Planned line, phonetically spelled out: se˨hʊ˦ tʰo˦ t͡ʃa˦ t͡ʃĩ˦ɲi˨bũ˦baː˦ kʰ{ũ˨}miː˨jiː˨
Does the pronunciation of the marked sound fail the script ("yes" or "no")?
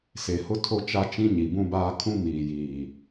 yes